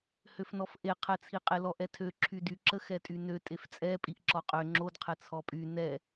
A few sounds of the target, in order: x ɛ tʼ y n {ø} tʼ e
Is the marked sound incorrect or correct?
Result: correct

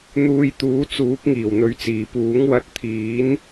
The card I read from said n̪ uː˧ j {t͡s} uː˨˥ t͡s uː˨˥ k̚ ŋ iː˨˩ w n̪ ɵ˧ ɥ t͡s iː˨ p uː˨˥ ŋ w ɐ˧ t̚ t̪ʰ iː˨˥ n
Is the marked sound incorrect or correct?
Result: incorrect: t̪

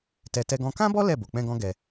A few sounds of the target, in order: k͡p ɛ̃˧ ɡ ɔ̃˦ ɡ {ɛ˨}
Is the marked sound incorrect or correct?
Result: incorrect: ɛ˧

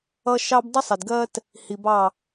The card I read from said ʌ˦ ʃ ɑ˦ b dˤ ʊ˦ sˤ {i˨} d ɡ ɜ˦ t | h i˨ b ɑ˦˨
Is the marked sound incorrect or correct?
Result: incorrect: ɪ˨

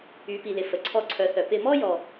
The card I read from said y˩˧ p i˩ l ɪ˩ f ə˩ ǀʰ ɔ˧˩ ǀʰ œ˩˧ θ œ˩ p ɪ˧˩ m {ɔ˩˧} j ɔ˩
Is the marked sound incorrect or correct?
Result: incorrect: ɔ˥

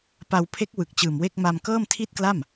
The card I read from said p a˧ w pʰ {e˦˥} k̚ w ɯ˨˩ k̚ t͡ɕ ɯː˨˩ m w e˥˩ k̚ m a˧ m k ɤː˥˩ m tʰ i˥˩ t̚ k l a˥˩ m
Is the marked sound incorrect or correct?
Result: correct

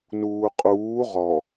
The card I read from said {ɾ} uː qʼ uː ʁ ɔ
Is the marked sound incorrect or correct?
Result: incorrect: n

